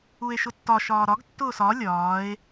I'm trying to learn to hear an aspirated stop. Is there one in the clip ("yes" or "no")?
no